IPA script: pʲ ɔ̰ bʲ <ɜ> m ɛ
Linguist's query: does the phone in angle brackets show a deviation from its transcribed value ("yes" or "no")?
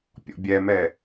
yes